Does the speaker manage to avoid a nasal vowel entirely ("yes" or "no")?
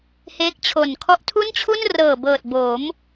yes